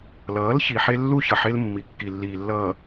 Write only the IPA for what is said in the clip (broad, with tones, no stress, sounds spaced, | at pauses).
l ʌː˨˦ l ç i˨ ħ e˦ lː u˦ ç ʌ˨ ħ e˦ l mː i˨ kː i˨ lː iː˨ lː ʌː˨